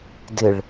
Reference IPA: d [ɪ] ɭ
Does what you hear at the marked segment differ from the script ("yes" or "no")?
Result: no